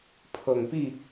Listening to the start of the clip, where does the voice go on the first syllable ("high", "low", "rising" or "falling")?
low